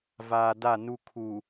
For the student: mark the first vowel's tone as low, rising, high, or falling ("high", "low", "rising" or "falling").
low